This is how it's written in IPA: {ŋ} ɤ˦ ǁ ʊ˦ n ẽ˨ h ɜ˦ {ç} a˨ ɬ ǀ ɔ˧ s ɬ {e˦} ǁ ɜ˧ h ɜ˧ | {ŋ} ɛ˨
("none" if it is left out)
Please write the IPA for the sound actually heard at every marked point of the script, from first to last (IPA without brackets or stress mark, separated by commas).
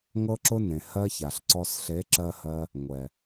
ŋ, ç, e˨˦, ŋʷ